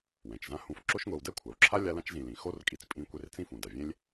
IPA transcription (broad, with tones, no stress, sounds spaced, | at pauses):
w ɛ̃˩ t͡ʃ z ã˦ h ũ˨ f ǁ o˦ ʃ ŋʷ ɛ˨ w d ɛ˥ kʷʰ a˩ w ǁʰ a˥ lʲ a˦ l ã˥ t͡ʃ z ĩ˨ l ĩ˩ x o˥ r kʼ i˨ t͡s pʼ ĩ˦ kʷ e˦ r t͡s ĩ˥ f ũ˩ d a˩ vʲ ẽ˥ lʲ